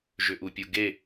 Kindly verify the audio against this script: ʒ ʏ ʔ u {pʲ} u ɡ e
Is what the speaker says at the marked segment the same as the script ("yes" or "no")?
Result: yes